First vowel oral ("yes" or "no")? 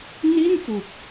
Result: yes